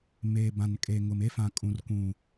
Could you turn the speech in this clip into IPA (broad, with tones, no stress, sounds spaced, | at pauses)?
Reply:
m eː˨ b ã˨ n kʼ e˨ ŋ ʊ˨ m e˦ f ã˨ kʼ ũ˨ r kʷ ũ˨